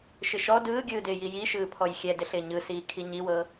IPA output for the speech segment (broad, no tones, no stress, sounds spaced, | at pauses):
ʃ ɪ ʃ ɔ d ɯː ɡʲ ɯː d ɪː j i j i ʃ ɯː pʰ ɔ j xʲ ɛ d ɪ ɬ ɪː ɲ ɯ s iː kʰ i ɲ i w ɤ